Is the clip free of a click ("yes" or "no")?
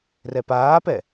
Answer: yes